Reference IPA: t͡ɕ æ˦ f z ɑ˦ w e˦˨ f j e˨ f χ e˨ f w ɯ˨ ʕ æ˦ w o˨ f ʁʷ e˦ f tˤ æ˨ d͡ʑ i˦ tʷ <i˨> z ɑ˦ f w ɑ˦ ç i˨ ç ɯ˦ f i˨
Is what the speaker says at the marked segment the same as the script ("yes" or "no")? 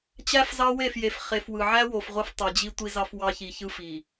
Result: no